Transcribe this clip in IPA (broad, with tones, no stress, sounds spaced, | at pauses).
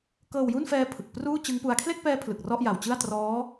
k ɤː˧ w j u˥˩ n f ɛː˦˥ pʰ ɯ˨˩ k̚ p r uː˥˩ t͡ɕ ɯ˦˥ ŋ p u˦˥ a̯ kʰ l e˥˩ k̚ p ɛː˦˥ pʰ l ɯ˨˩ k̚ r ɔ˥˩ ʔ j a˨˩ w t͡ɕ ɯ˥˩ a̯ t r ɔː˦˥